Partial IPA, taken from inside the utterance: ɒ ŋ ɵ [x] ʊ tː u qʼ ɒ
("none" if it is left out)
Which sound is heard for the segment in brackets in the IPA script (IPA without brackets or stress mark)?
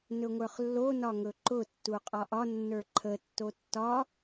ǃ